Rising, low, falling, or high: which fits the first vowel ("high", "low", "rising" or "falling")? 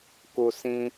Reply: low